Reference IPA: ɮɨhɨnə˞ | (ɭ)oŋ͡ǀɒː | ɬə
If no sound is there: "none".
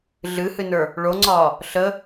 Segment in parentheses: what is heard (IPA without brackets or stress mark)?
ɭ